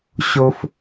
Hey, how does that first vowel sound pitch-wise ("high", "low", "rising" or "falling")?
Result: high